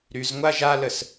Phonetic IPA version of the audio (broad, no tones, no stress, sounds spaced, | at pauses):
ɾ y z ŋʷ a ʒ a l ə s